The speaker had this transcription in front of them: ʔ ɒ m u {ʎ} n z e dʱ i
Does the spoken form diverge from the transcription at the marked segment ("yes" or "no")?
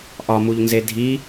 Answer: no